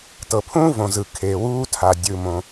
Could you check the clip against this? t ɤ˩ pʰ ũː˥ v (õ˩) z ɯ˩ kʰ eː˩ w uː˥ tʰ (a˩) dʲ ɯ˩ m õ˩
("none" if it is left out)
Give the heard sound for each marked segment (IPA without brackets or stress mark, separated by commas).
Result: õ˩, a˩